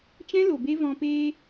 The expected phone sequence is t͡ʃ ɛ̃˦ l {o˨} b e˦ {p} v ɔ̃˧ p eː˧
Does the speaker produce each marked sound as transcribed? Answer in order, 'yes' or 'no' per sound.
yes, no

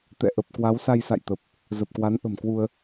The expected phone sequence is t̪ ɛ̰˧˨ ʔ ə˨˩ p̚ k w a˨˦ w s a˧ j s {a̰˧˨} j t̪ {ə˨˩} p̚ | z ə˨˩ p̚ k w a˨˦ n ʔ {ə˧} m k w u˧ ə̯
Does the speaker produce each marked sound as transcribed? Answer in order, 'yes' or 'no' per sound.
yes, yes, no

